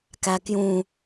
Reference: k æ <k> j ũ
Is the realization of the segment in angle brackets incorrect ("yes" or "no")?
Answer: no